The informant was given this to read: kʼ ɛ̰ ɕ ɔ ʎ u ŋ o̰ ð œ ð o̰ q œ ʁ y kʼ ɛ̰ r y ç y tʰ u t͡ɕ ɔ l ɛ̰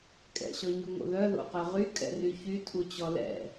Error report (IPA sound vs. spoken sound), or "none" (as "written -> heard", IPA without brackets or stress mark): ʎ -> ɲ